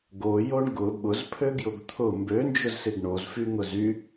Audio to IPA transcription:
ɡ o j o ɳ ɡ ʊ ɓ ʊ z pʰ ø ɡ j ʊ ɡ t̪ʰ ʊ m b ø n d͡ʒ ʊ z s ɪ ɡ ɳ o z f y ŋ ʊ z y

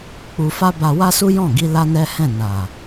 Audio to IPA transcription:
k͡p u˧ f a˦ b a˧ w a˦ s u˦ j ɔ̃˦˨ ɡ i˧ l a˦ n ɛ˦ h ɛ̃˦˨ n a˨

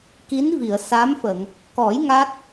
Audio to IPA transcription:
k i˧˥ n v i˨˩˨ ə̯ s a˧˥ m f ə˨˩˨ ŋ | k ɔ˨˩˦ j ŋ a˦˥ t̚

